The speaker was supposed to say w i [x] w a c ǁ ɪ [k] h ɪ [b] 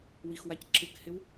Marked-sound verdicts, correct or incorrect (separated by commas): correct, correct, incorrect